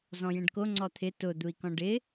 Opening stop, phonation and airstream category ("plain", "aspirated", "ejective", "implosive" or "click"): plain